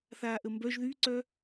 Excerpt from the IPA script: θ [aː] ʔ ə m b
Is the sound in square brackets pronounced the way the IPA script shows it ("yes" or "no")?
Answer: yes